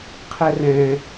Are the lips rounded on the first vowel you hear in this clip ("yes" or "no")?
no